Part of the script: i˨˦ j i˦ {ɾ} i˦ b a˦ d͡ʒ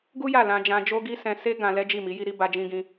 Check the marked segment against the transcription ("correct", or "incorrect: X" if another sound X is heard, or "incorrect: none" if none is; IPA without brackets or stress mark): correct